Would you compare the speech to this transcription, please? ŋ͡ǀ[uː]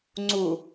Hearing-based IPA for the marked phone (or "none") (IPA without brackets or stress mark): u